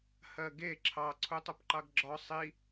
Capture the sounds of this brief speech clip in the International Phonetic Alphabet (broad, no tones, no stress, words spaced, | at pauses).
hɜɡe ǁʰɑ ǀʰutˤʊpǃɑɡɡ͡ǁɒ sˤi